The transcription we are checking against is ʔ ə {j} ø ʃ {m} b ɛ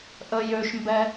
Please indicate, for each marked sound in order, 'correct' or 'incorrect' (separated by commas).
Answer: correct, correct